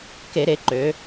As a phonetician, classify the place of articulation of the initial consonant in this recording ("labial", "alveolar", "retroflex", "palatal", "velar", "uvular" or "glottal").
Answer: velar